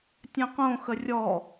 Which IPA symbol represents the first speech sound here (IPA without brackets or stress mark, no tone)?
tʲ